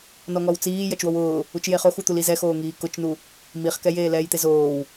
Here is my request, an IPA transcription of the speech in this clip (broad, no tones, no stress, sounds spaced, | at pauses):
n ɔ ŋ ɔ w t͡s iː j ɐ t͡ʃ w o w ʊː | u t͡ʃ j e χ o x u t̪ u l i z ɛ x oː ŋ iː k ʊ t͡ʃ n u | m i χ k ɛ j eː l ɛː j t̪ e z oː w